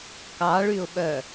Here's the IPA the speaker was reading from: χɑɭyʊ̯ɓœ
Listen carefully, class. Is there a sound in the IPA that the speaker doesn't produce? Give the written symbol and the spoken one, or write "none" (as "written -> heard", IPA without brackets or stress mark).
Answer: χ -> k